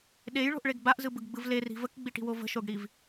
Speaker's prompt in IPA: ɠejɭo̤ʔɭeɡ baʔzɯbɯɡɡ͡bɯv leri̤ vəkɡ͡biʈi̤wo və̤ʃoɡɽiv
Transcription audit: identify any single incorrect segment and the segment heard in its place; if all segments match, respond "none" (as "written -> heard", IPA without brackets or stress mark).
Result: ɠ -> ɗ